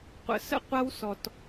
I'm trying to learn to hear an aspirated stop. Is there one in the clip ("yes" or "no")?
no